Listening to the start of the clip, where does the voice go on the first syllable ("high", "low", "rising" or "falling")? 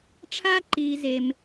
high